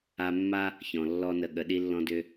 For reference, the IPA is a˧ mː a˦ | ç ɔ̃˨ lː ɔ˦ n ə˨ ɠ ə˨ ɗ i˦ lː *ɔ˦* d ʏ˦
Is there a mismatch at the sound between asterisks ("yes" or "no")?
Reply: yes